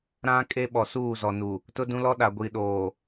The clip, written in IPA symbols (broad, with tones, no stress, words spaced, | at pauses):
ɾã˦ kʼe˦ɓɔ˨suː˦˨ zɔ˨nu˨ | tʊ˦dũ˦lɔ˦ ɗa˨ɡʷi˨ɗoː˨